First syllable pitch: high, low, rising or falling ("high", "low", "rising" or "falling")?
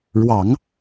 low